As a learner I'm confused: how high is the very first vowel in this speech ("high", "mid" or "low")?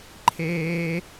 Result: mid